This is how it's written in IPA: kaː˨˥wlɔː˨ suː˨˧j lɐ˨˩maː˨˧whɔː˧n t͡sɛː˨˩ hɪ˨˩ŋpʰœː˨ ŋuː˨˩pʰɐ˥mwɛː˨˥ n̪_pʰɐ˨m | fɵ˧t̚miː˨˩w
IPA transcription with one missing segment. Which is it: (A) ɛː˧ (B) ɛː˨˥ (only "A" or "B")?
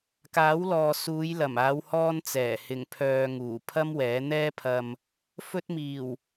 A